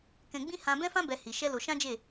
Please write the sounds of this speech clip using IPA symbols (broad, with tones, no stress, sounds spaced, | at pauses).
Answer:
k ɛ̃˧ ɡ͡b ĩ˦ h ã˦ b ɛ̃˦ f ã˦ b ɛ˧ h i˧ ʃ ɛ˦ l o˧ ʃ ã˦ d͡ʒ e˦˨